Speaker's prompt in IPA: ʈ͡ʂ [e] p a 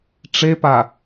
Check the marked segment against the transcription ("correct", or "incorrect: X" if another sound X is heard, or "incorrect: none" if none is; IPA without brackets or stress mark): correct